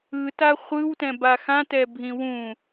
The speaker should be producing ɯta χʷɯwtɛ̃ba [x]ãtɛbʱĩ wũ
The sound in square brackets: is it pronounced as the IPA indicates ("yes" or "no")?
yes